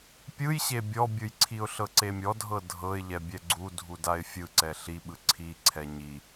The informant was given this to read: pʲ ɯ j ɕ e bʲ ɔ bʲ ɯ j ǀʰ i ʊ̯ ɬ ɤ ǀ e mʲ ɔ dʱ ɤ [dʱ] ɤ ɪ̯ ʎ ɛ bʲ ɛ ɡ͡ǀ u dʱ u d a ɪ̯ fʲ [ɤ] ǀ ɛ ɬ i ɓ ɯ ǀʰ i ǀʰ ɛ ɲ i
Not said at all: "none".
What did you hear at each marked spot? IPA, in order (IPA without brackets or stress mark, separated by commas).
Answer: dʱ, ɯ